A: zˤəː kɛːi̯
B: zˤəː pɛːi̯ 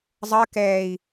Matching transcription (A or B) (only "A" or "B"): A